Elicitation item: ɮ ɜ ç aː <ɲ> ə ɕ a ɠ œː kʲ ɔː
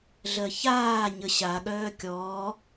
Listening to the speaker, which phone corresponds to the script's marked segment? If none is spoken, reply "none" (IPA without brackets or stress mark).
ɲ